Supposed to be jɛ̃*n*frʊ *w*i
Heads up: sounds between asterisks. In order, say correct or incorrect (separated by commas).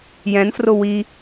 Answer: correct, correct